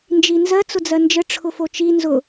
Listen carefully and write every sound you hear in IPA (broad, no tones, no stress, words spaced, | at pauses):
nd͡ʒinzɜ t͡sʊd͡zɜnd͡ʒə ʈ͡ʂʰʊfot͡ʃi nzʊ